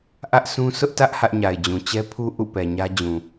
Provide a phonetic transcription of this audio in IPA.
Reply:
ʔ ä˦ ʔ s ũ˦ s ʊ˦ ʔ t ä˦ ʔ h ä˦ ʔ ɲ a˨ ɪ̯ d͡ʑ ũ˨ t͡ɕ ɛ˦ pʰ u˦ ʔ ṵ˦˨ p ɛ˨ ɲ ä˦ d͡ʑ ũ˨

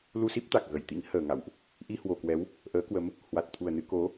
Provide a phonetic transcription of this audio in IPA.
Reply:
l u˧ s i˦˥ p̚ t̪ a˨˩ k̚ ɣ ə˧˩ j t̪ ḭ˧˥ ŋ h əː˨˩ ŋ a̰˧˨ w ʔ | ʔ i˧ h w o˨˩ k w ɛ˨˦ w | ʔ əː˨˦ k w ə˨˦ m | h w a˨˩ t̚ t̪ʰ u˨˩ ə̯ n ɨ˧ k o˨˦

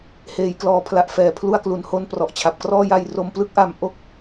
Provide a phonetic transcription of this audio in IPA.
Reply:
h eː˩˦ j k l ɔː˩˦ pʰ l a˨˩ ʔ f ɛː˨˩ pʰ l u˧ a̯ k l u˩˦ n h o˧ n p r ɔ˨˩ ʔ t͡ɕʰ a˨˩ p̚ k r ɔː˥˩ j a˧ j r o˧ m p l ɯ˥˩ k̚ ʔ a˧ m ʔ o˥˩ k̚

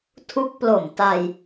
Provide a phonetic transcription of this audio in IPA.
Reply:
tʰ u˦˥ k̚ p l o˨˩ m t a˧ j

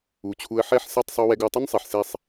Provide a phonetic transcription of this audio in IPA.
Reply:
u˨˦ t͡ɕʰ u˧ ə̯ ħ ɛ˦˨ ħ s ɛ˦˨ tˤ sˤ u˧ w ɛ˧ ɡ u˨ tˤ ʊ˦ n sˤ e˨ ħ s e˦˨ sˤ

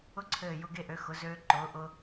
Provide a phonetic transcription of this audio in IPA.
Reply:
ʊ˦ ǀʰ ɘː˧˩ j ʊ˦ ɡ e˦ ʔ ø˨˥ x ʊ˨˥ z øː˦ ǃ ʊː˨˥ ʔ ʊ˦

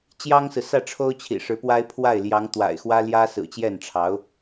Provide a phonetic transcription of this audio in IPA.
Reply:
t͡ɕ j ɑ˥ ŋ s ɹ̩˨ s ä˥˩ ʈ͡ʂʰ o˥ ʊ̯ t͡ɕʰ ḭ˨˩ ʂ ɻ̩˧˥ p w a˥ ɪ̯ pʰ w a˥˩ ɪ̯ l j ɑ˧˥ ŋ t̪ w a̰˨˩ ɪ̯ x w ä˥ l j ä˥ s ɹ̩˨˩ t͡ɕ j ɛ˥˩ n ʈ͡ʂʰ ɑ˧˥ ʊ̯

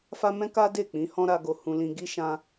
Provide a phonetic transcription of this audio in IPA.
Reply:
f a˦ m ɛ̃˦ k a˦ d e˦˨ k͡p ĩ˨˦ h ɔ̃˦ ɾ a˧ ɡ o˧ h ũ˧ l ĩ˧ ɡ i˦ ʃ ã˦

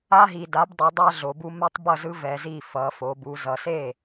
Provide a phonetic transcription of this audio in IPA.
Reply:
a˦ ɦ i˩ d a˩˥ b dˤ ʌ˩˥ dˤ a˦ ɮ o˩˧ b u˦ m ɛ˦ tˤ b ʌ˥˩ z ɯ˦ v ɛ˩˧ z i˥˩ f ʌ˩˧ f o˩˧ b u˩˧ z ʌ˩ s e˥˩

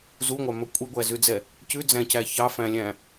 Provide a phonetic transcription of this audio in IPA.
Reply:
z u ŋʷ ɑ m ɵ kʷʼ i ɡʷ æ z ʉ d͡z ɛ | c ʉ d͡z æ̃ c æ ç ɑ f æ̃ lʲ æ̃

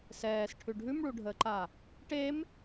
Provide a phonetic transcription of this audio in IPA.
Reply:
s ɛː s ʈʰ ʉ ɖʱ ʉ m ɭ u ɖʱ əː ǃ a | ʈ e m

